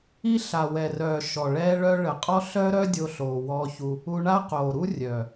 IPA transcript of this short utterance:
i˦ ɬ a˨ w ɛ˨ r œː˨ ʃ ɔ˨ ɭ ɛː˦ ɭ œ˦ ɭ ə˨ qʼ ɔ˦ ɬ œː˦ ɾ œ˦ dʲ o˧ ɬ oː˨ w ɔ˧ ç u˧ | u˧ ɳ a˦ q oː˨ ɾ u˦ rʲ œː˨

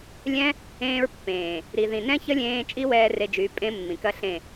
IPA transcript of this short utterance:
lʲ ɛ̃˦ | ẽː˧ ɹ pː ẽː˨ | ɾ i˨ ð ĩ˨ n ɛ̃˦ ç ə˦ lʲ ẽː˧ t͡ʃʼ i˦ w ɛː˧ r e˧ d͡ʒ y˨˦ pʼ ẽ˦ mː ĩ˨ k ɐ˧ ɬ ẽ˦˨

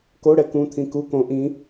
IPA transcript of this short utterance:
k o ɽ ɛ k ũ t̪ʰ ĩ k u k õ ʔ ĩ

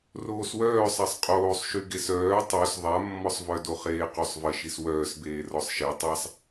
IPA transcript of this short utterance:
r oː s w œː sˤ a sˤ qʼ oː sˤ ʃ y ɡ e s œː tˤ o s ðˤ a mː ɔ sˤ v œ d o χ eː q y sˤ v ə ʃ i s w œː s b eː r ɔ sˤ ʃ e tˤ a sˤ

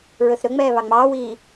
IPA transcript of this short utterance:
ɹ ɵ θ ɾ ɵ ŋ͡m ɛː β ɑ ŋ͡m ɑː w iː

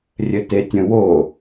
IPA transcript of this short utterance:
rʲ ɘ t e tʲ ə̃ w o

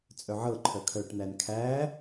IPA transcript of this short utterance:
t͡sʼ œ ʕ ɤ ǃʰ œ kʰ œ ʈ n̪ æ n kʰ æ

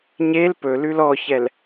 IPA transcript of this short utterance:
ɲ e l p ɵ l ʉ l ɔ ç ɛ l

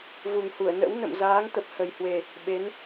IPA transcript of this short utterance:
v u˨˩ ŋ h u˧˩ ə̯ n ə̰˧˥ w n ə̰˧˨ m z aː˨˦ ŋ t̪ ə˨˩ p̚ h ə˨˩ j h w e˨˩ | ɓ e˨˦ n

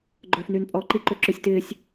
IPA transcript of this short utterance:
ɡ͡ǃ œː f n yː n pʼ ɔː ǃ i ǃ ø ǁ ʏ sʲ t ɪː sʲ

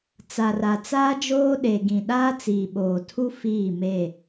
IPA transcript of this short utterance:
t͡s a˨ r a˨ t͡s aː˦ d͡ʒ oː˦ ɗ e˨ ɡ ĩ˨ ɗ aː˦ t͡s iː˨ ɓ oː˨ tʰ u˦ f iː˦˨ m e˦˨

